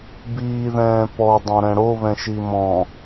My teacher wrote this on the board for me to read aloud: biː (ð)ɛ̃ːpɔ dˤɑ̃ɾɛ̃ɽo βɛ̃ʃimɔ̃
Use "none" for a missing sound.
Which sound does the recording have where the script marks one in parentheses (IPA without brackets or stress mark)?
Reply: ð